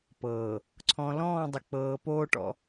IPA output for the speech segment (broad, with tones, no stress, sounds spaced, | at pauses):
p ɤː˨ | ǀʰ ɔ̃˨ l ɔ̃ː˦˨ dˤ ʊ˨ k͡p ɤː˨ p oː˦ ʈ ɔ̰˦